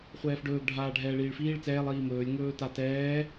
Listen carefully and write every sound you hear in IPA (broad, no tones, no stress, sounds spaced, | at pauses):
χʷ ɛː f ɖ ɵː ɡ ɖʱ aː ɖʱ ɛː ɭ iː ɭ f iː ɭ t͡s ɛː lˠ iː m ɵː lʲ ŋ ɵː t a t ɛː